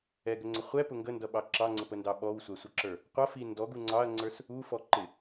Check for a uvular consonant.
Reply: present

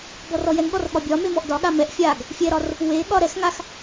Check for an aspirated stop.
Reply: absent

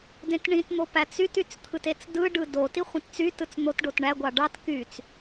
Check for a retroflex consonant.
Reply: present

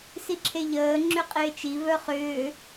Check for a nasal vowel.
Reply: absent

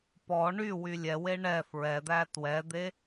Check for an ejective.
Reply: absent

